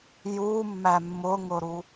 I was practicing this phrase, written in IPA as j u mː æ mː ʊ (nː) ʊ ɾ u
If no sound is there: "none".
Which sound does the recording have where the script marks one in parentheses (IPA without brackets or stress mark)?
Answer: ŋ